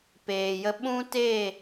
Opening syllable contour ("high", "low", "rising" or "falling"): low